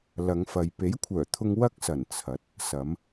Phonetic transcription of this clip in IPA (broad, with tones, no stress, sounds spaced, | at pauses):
l ɐ˨˧ ŋ f ɐ˨ j p e˨˥ j kʷʰ œː˨˩ t̪ʰ ʊ˧ ŋ w ɐ˥ k̚ s ɐ˨˩ n t͡sʰ ɐ˨˥ t̚ | s ɐ˨˧ m